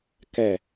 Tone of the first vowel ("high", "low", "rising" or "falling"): falling